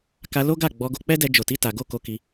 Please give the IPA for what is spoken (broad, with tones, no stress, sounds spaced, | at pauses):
k a˧ l o˦ ɡ a˦˨ ɡ͡b ɔ˨˦ ɡ o˧ k͡p ɛ˦ d ɛ˧ d͡ʒ o˨ t i˨˦ t a˧ ɡ o˦ k o˧ k i˧